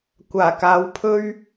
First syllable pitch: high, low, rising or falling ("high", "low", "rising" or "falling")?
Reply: low